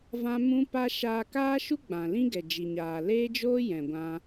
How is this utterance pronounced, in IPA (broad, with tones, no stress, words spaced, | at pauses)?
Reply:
vã˦mũ˦pa˦ ʃaː˧kaː˦ʃu˦ ɡ͡bã˨lĩ˦ɡɛ˨d͡ʒi˨ ɲaː˨leː˦d͡ʒoː˦ jɛ̃˨ɡʷã˦